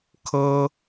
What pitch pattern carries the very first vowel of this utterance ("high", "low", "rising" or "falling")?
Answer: high